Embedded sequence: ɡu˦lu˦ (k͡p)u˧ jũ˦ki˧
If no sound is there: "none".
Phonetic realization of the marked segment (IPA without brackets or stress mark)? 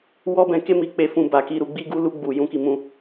ɡ͡b